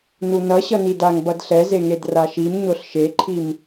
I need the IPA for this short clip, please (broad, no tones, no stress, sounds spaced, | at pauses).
n u n ʌ ɕ ʌ n i d a ŋ b ʌ d ɬ ɛ z e ŋ e d r a ʃ i m ɲ o ɬ ʃ e ǃʰ i m